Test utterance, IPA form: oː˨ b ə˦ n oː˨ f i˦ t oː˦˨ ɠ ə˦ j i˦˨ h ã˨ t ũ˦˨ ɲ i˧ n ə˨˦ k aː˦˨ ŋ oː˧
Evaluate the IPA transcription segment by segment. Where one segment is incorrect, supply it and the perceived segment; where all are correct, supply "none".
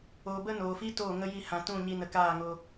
ɠ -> ŋ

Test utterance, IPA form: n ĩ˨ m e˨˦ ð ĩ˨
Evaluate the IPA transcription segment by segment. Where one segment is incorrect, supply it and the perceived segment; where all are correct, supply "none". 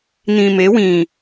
ð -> w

